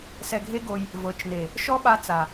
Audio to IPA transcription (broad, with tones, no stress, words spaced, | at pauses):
sɛ˧ɡʱe˦ɡo˧j | vɤ˨˦t͡ʃne˨ | ʃɔ˦ɓa˧t͡sa˨